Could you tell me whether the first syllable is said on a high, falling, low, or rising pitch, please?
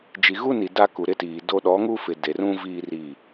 low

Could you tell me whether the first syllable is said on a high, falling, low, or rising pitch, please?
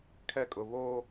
high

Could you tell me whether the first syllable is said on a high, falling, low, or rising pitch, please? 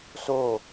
falling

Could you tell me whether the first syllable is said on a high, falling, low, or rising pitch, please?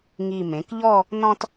low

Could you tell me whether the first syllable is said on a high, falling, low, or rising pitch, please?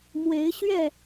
rising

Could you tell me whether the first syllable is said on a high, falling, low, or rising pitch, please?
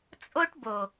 high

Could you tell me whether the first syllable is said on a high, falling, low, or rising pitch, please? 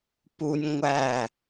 high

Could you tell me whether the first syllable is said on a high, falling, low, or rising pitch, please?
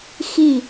falling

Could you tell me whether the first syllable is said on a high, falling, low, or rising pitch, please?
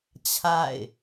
falling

